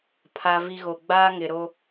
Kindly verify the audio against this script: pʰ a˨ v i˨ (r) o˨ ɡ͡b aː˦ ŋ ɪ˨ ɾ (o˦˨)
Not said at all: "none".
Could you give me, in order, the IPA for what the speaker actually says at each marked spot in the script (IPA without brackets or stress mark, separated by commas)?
ɣ, o˦